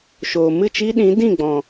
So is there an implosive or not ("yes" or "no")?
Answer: yes